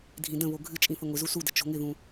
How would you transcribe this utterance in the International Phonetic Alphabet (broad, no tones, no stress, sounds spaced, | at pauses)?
dʱ ĩ d ə̃ β o ɡʱ ɨ t͡ʃʼ ĩ θ ə ŋʷ ɪ z u s u d ə̤ t͡ʃ o̤ ŋ ɪ ð ũ